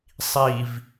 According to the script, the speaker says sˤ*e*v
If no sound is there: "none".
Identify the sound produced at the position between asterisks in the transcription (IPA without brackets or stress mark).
i